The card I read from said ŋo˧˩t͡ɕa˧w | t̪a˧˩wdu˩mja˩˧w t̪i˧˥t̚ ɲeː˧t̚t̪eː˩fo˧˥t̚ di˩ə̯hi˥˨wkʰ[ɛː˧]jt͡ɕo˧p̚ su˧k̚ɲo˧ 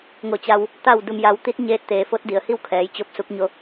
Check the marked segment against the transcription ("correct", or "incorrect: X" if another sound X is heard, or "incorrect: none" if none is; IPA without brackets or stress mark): incorrect: ɛː˩˧